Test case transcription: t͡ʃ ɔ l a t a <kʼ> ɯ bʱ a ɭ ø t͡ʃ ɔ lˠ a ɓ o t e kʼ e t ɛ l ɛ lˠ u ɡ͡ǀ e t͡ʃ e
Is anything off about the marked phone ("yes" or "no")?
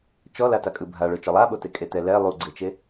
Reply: no